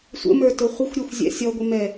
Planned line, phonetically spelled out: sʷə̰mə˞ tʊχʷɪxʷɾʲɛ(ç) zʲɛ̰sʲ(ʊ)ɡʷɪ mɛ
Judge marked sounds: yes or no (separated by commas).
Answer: no, no